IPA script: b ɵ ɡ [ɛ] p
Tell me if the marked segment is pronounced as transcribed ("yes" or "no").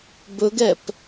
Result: yes